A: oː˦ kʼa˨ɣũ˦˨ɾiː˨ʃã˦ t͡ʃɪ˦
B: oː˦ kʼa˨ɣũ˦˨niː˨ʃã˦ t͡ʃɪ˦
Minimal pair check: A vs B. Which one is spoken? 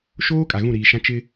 A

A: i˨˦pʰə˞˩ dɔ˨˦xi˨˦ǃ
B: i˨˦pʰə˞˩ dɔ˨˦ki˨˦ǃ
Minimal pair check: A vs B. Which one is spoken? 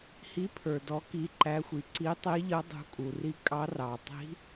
B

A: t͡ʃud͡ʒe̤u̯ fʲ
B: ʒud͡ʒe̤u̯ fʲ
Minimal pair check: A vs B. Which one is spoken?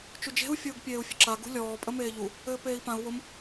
A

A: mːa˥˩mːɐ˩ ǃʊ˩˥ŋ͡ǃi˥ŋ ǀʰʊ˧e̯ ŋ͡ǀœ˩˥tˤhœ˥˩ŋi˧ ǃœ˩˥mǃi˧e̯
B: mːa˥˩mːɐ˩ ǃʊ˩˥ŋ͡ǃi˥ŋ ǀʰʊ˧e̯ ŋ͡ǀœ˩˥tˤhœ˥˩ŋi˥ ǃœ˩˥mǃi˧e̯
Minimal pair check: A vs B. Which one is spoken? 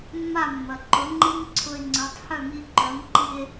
A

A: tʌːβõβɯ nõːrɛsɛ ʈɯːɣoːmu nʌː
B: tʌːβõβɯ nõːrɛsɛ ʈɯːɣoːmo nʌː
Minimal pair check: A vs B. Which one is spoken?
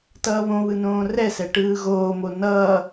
B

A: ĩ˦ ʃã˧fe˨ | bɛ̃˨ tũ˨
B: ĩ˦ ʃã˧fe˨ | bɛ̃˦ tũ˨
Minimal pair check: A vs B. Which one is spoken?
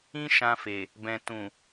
A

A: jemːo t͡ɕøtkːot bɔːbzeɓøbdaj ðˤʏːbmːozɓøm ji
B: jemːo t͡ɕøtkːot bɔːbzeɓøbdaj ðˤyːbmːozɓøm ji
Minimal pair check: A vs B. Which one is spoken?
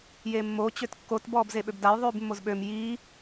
B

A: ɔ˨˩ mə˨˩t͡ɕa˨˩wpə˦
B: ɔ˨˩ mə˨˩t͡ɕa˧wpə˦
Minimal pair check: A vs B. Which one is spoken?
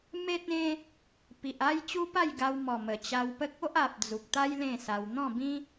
B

